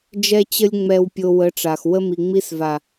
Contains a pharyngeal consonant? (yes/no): no